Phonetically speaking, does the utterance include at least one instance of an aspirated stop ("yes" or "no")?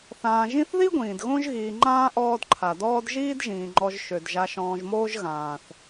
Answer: yes